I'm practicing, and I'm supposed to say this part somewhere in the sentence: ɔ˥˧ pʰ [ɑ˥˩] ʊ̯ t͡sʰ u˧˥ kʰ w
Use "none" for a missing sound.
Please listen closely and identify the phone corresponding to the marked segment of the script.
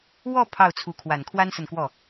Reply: ɑ˥˩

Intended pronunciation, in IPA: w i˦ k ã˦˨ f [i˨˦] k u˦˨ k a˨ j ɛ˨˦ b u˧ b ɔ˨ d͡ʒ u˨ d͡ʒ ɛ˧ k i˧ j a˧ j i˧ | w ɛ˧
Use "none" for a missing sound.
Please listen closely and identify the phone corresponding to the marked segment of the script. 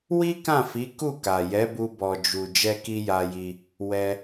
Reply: i˨˦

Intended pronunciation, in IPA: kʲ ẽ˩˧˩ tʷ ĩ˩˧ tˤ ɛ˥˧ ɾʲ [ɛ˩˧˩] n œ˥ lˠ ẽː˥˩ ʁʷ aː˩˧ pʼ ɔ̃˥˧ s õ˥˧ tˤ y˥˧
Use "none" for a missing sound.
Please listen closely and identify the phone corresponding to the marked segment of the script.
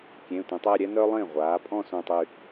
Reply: ɛ˥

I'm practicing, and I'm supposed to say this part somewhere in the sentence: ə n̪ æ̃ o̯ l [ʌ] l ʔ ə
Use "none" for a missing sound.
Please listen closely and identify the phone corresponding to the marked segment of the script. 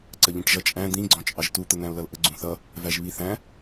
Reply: ʌ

